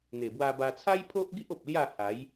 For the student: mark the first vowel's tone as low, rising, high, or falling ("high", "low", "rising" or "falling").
low